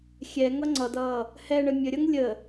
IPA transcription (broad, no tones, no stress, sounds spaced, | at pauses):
xʲ ɛ ŋ ʌ ŋ͡ǀ ʌ d ʌː | h ɛ ɳ ə mʲ ə ɾʲ ʌ ŋ lʲ ə